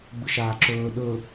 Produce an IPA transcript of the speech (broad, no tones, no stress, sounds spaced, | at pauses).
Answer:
ɡ͡b ɯ ʃ aː ǁ ɵː ɗ ɵ